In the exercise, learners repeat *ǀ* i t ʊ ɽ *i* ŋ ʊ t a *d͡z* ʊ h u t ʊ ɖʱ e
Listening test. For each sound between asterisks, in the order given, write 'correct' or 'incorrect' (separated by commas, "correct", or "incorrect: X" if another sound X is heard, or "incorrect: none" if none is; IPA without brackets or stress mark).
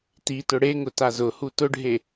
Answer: incorrect: t, incorrect: e, incorrect: z